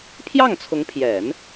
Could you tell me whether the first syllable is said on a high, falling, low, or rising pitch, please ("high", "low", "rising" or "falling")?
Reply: falling